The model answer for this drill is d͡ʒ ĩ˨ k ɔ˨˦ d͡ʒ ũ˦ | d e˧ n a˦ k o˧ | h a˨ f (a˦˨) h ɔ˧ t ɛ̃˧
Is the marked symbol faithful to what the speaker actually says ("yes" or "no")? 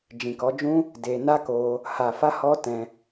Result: no